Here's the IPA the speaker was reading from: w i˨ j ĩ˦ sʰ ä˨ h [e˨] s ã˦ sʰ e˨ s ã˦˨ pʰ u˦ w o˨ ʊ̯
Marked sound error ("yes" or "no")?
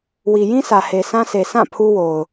no